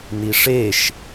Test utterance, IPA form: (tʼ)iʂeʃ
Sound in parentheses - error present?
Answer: yes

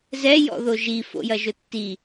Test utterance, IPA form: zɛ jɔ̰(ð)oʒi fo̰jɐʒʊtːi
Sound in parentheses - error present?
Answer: no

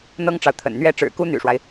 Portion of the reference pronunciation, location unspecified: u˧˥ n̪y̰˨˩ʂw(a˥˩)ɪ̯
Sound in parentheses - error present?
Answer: yes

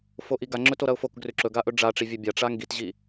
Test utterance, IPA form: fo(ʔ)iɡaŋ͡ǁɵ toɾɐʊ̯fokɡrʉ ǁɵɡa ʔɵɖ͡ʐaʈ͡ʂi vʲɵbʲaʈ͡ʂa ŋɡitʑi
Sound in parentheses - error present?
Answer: no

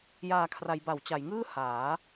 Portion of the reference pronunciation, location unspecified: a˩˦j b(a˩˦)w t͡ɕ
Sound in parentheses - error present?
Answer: no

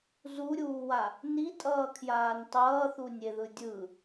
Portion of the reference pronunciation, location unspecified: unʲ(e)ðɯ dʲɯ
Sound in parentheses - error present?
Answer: no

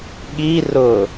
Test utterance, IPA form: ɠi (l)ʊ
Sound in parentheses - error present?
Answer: yes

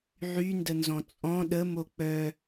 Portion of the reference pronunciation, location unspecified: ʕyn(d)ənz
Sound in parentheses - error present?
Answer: no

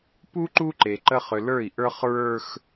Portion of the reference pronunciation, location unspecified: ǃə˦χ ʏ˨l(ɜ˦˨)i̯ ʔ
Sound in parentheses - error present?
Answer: yes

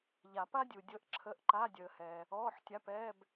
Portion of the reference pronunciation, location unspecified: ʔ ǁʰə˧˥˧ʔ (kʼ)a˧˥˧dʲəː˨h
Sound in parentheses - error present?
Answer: yes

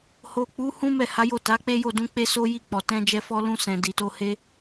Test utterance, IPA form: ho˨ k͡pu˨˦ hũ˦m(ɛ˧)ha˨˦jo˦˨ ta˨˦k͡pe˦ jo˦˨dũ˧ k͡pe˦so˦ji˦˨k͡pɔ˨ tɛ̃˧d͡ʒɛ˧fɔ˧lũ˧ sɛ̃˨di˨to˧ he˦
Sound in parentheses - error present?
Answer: yes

